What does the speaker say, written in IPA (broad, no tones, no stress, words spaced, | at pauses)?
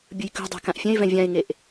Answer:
bʲɯjkṳdˤa̤ kãʔfʲɛ̃ɪ̯vɛ̃ vʲãɪ̯ŋeʔ